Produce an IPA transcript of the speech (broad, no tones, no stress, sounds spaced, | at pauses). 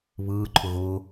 β ɯː ǃʰ ʊ ɣ ʊː